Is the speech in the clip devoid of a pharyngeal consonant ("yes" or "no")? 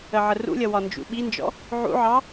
no